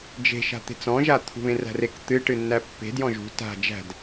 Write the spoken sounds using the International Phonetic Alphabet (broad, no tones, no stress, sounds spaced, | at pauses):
d͡ʒ e̤ ʃ a̤ t̪ e̤ t͡s ɔ̃ ʒ a t̪ʰ ṳ β ẽ r æ̤ r e k t̪ ɨ ʈ ɨ nː æ pː e̤ d j ɔ̃ ʒ ṳ t a̤ d͡ʒ æ̤ d